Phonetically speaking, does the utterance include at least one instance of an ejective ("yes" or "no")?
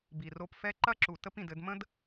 no